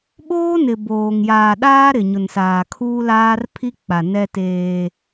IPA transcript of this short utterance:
ɓ oː˦ n ɪ˨ b oː˨ ŋ j aː˨ ɗ aː˦ ɾ ɪ˨ ɲ ʊ˨ n s aː˨ kʰ uː˦ l aː˦ r pʰ i˦ k͡p a˨ n ɛ˦ t eː˦

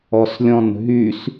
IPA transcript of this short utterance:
ɔ s lʲ ɔ̃ n ɦ y s

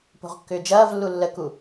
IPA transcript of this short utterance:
p o̤ ʁ kː ʏː d͡ʒ ɐː v lː u lː ə k u

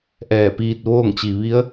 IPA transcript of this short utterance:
ʔ ɛː˧˩ p iː˧ t̚ ʋ oː˥˨ ŋ t͡ɕ i˩ ʋ i˧˥ ə̯

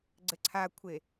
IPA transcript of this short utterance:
ɡ͡ǀ ɘ ǀʰ a kʷʰ e

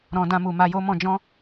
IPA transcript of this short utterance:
ɾ ɔ̃˨ d ã˧ m u˨ m a˧ j o˦ m ɔ̃˧ d͡ʒ ɔ̃˦

